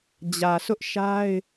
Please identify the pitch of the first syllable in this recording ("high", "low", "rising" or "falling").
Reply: low